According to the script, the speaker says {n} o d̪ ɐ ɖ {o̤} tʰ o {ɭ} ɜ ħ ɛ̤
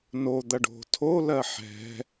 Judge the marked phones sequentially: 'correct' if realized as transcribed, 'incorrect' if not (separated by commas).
correct, correct, incorrect